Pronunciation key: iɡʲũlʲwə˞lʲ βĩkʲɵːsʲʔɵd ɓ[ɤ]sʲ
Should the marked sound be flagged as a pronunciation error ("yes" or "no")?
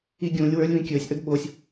yes